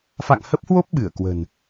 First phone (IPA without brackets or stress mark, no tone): f